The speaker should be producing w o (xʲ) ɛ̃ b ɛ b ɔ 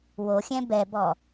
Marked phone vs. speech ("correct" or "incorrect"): correct